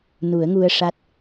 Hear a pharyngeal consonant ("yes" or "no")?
no